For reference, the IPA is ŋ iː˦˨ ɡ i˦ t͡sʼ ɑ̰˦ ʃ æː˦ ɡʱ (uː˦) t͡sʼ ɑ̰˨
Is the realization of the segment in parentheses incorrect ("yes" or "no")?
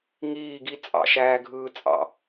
yes